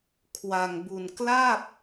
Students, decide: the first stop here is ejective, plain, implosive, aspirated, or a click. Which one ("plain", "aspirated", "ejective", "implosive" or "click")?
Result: aspirated